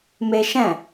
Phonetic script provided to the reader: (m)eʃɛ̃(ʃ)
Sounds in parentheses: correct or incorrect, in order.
correct, incorrect: none

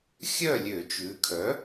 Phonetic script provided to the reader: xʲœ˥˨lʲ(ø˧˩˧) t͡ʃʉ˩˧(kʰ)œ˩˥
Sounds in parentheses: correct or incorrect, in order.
correct, correct

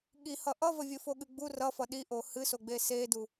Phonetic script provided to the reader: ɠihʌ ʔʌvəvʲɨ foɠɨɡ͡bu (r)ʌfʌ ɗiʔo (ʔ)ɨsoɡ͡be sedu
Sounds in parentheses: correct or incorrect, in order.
correct, incorrect: h

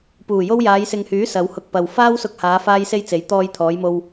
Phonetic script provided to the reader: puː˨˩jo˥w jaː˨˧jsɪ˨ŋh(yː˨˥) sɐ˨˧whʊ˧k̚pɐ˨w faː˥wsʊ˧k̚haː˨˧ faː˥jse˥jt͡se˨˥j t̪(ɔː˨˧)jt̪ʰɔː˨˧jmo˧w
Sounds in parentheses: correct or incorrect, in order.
correct, incorrect: ɔː˧

